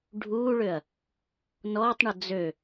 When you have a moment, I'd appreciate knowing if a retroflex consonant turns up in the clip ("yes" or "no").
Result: yes